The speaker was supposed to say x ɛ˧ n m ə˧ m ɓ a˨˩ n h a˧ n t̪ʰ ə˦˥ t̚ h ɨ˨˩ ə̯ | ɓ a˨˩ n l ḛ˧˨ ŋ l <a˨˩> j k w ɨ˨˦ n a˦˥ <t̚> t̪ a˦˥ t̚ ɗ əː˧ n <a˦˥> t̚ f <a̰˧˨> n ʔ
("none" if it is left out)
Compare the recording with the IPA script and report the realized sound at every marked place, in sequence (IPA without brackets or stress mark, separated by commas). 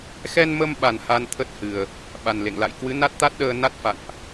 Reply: a̰˧˨, t̚, a˦˥, a̰˧˨